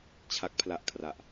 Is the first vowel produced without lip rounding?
yes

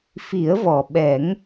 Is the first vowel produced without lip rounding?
yes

